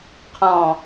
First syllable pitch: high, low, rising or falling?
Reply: low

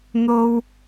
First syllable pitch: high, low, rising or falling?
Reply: high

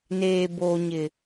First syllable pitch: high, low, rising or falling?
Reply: low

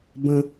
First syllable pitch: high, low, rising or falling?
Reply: high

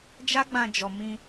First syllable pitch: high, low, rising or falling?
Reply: high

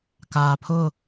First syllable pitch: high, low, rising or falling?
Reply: low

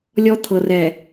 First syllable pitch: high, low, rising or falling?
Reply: high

